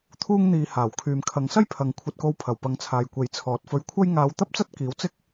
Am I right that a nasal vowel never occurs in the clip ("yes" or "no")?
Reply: yes